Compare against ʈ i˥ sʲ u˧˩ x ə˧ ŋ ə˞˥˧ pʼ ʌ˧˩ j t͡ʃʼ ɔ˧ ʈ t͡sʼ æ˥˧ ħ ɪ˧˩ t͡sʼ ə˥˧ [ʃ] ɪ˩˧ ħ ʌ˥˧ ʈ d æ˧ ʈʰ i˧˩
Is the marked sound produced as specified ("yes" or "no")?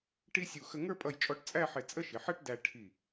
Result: yes